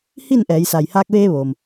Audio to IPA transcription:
hi˥˨nʔɛː˩˧j sa˩jhaː˧k̚ʋeː˧ ʋoː˩m

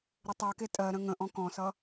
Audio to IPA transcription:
ɾɪtˤɜke tʼɜɾə̃ ŋə̃ʔɔ̃ kɔ̃sʌ

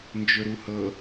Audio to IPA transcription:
nd͡ʒɵɾuhɤ

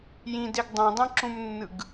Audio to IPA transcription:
jĩdeɡ dˤũdˤĩǁũmnːɯɡ

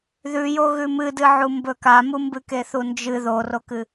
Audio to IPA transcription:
ðʉjo ɣʉmɨdɨ ʕumbɵkamu mbɨkeθund͡ʒɨ ðorokɨ

